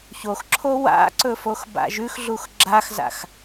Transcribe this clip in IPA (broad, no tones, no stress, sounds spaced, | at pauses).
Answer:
ç o x ǁʰ o w a̰ ǀ ɵ f o x b a̰ ʒ ʉ x ɮ u x ɡ͡ǁ a x z a̰ x